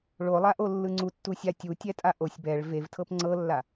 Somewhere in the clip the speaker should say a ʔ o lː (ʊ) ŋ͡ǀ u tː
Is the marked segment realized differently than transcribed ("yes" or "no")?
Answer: yes